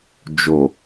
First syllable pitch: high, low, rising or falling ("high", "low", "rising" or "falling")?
low